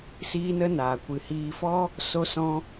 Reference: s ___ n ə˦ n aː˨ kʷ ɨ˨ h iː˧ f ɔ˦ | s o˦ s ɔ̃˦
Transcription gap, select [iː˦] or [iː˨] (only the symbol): iː˦